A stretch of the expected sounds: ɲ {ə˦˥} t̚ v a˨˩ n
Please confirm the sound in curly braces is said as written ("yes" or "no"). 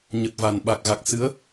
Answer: no